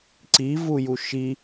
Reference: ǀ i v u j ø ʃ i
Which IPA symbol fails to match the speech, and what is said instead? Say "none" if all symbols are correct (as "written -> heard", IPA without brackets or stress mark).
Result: ø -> u